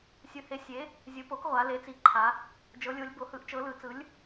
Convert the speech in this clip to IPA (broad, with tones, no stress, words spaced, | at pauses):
sʲɯ˩˧he˩˥sʲe˩˥ | zʲɯ˩˧po˩˥k ʁʷa˩˧le˩˥t͡si˩˧ ǃʰa˩˧ | d͡ʒɤ˩˧lʲo˩˧lʲbo˩˧hɯ˩˥ʔ t͡ʃɤ˩˧lɯ˩˧ t͡sɯ˩˥lʲ